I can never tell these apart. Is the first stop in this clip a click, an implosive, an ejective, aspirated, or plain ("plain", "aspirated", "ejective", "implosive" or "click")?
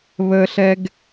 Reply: plain